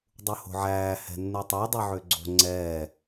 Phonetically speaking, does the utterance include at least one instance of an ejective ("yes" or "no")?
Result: no